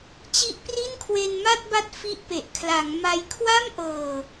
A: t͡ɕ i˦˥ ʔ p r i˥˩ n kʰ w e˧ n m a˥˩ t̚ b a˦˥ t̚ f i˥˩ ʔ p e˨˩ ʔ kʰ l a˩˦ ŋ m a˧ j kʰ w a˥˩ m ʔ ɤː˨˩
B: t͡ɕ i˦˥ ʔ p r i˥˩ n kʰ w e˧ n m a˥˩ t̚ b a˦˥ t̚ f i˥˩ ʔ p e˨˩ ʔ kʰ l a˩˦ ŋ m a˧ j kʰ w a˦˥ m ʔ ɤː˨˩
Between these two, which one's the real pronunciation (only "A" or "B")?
A